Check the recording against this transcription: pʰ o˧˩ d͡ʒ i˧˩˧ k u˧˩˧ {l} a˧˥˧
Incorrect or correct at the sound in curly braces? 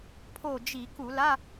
correct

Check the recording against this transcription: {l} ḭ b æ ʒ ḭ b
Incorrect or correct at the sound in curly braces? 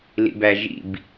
correct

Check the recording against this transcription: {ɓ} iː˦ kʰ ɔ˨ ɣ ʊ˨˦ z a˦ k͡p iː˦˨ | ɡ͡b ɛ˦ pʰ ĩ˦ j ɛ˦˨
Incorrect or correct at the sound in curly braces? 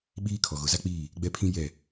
correct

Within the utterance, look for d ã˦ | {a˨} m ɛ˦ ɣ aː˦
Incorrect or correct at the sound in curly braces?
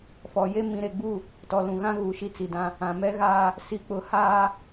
incorrect: ã˨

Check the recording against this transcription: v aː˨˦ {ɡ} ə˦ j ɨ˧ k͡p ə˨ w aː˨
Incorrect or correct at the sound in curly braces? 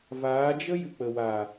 incorrect: d͡ʒ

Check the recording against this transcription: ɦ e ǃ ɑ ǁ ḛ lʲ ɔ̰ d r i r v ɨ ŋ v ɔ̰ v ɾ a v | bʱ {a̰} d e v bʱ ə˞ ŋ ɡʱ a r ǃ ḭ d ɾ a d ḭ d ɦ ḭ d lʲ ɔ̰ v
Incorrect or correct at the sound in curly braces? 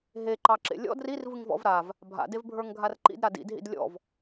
correct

